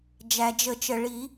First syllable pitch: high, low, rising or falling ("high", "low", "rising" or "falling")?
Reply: low